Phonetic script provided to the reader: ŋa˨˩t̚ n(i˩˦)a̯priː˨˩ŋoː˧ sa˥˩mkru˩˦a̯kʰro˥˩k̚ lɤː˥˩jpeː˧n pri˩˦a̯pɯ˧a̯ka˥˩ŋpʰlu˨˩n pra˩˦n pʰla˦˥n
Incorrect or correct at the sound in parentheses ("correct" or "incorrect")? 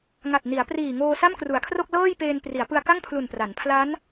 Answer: correct